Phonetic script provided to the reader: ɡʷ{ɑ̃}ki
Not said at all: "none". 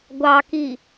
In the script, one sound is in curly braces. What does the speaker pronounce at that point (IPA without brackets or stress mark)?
ɑ